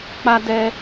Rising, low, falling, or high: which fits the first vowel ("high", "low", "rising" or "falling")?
high